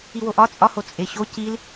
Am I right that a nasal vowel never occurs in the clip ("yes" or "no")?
yes